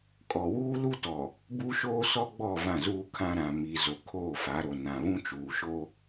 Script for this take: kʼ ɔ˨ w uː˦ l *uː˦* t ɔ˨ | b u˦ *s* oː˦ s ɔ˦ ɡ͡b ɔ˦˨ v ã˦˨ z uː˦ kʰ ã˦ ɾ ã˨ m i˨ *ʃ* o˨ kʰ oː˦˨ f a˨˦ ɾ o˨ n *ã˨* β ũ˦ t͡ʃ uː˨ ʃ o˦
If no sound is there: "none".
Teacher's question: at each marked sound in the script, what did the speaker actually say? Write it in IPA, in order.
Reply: u˦, ʃ, z, ã˨

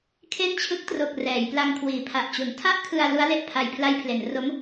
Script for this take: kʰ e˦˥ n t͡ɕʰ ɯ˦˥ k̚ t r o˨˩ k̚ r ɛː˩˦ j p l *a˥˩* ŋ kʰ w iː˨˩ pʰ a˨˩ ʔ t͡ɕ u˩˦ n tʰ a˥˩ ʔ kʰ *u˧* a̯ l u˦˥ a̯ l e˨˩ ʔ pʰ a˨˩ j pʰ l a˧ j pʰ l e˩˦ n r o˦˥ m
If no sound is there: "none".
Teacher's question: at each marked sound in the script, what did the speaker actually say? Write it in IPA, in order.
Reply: a˧, ɯ˧

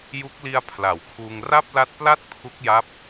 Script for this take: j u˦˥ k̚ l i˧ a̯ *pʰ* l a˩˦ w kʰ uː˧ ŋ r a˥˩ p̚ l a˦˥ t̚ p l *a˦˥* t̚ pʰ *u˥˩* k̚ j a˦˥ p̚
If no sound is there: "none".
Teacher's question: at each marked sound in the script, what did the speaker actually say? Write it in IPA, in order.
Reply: pʰ, a˥˩, u˦˥

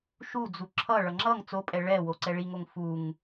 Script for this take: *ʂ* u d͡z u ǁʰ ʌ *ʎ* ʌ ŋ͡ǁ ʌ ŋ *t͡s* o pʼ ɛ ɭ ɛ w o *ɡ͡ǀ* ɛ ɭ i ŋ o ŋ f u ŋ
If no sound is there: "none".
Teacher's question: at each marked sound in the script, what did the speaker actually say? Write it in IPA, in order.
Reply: ʃ, ɭ, t͡s, ǀ

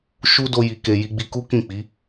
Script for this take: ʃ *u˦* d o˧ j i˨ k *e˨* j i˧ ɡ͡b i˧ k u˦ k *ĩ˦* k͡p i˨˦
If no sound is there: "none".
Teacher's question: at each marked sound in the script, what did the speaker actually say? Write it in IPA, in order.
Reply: u˦, e˨, ĩ˦˨

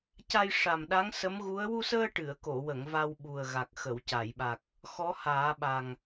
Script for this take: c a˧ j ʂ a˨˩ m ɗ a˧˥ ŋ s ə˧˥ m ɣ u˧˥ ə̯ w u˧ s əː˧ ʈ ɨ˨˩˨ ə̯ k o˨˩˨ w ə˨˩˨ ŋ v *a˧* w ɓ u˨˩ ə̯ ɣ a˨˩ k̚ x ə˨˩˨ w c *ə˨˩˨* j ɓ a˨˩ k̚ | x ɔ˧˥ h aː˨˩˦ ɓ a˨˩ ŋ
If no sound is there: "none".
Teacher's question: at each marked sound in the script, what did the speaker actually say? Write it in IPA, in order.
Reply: a˧, a˨˩˨

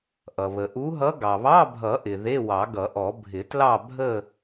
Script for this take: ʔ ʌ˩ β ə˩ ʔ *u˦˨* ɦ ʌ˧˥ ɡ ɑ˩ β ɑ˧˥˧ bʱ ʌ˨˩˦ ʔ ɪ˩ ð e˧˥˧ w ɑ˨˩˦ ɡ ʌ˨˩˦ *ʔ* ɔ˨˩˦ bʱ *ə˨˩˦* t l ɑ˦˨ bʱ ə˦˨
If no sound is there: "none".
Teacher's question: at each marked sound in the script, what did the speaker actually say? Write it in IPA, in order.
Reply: u˧˥, ʔ, ɪ˨˩˦

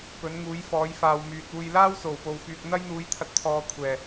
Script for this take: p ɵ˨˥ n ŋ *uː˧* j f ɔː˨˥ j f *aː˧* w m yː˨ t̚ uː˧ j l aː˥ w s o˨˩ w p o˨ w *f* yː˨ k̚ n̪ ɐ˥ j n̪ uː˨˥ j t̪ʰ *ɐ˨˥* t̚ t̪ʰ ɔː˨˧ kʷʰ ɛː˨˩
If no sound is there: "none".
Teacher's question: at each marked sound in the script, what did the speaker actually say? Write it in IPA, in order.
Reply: uː˨˥, aː˨, f, ɐ˧

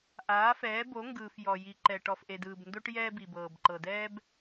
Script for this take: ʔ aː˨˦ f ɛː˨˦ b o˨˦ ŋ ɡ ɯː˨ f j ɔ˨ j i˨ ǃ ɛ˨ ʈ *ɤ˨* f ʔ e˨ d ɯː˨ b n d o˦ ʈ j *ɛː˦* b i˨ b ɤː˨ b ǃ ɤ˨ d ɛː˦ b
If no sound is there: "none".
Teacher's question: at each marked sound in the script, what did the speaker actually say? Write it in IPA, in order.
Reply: ɔ˨, ɛː˦

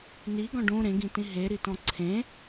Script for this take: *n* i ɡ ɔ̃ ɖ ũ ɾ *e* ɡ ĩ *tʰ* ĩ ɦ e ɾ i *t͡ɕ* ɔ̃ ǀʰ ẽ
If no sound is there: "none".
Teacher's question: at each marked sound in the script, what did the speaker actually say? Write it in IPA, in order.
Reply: n, ẽ, t, t

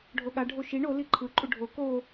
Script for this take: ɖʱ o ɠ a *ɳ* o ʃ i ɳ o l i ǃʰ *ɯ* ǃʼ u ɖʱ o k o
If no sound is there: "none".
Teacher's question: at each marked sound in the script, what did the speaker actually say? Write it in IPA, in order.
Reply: ɖʱ, ɯ

